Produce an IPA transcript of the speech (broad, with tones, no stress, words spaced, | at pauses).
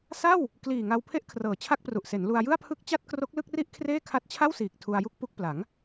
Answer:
sa˥˩w | kliː˨˩ŋa˧wpʰe˥˩ʔ kʰrɤː˨˩t͡ɕʰa˥˩k̚pru˨˩ʔ se˩˦nlu˧a̯jɯ˥˩a̯pʰɯ˥˩k̚ t͡ɕa˥˩t̚kro˦˥k̚lɯ˥˩k̚ri˥˩ʔ kʰreː˥˩ kʰa˦˥t̚t͡ɕʰa˥˩wsiː˨˩k̚ tʰu˧a̯ju˥˩k̚pu˦˥k̚ pla˩˦ŋ